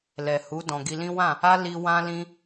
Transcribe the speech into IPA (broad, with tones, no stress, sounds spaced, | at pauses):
l ɛ˨ h u˨˦ d ɔ̃˧ ɡ i˧ l ĩ˦ w ã˦˨ | a˦ l i˦ w ã˦ l ĩ˦